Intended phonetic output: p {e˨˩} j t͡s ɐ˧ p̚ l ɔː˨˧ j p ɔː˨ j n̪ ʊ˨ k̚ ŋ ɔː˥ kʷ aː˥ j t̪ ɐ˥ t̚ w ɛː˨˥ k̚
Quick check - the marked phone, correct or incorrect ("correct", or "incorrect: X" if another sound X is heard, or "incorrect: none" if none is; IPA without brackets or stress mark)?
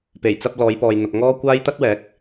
correct